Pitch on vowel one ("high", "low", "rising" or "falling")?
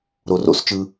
low